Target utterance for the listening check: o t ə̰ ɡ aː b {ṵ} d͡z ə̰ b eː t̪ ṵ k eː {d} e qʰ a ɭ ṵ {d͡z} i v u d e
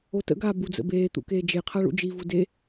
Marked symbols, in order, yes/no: no, no, no

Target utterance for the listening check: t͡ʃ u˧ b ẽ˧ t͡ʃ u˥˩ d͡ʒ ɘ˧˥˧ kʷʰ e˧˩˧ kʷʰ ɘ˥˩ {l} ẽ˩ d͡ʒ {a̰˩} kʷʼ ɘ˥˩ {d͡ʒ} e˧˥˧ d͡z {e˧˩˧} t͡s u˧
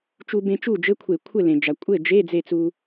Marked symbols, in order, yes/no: yes, no, yes, no

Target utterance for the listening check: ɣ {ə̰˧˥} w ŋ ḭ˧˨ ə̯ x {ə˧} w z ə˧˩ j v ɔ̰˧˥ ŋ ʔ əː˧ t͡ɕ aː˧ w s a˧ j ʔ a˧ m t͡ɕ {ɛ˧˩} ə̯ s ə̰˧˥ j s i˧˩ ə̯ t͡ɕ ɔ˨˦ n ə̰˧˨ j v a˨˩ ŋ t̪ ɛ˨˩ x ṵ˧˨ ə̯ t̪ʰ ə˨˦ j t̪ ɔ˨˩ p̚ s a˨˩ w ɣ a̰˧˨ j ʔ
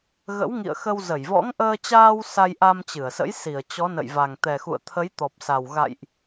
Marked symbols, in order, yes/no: yes, yes, no

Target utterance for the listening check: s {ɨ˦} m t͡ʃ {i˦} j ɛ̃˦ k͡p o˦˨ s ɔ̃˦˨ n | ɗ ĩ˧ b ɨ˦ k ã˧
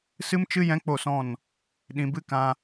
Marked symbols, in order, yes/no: yes, no

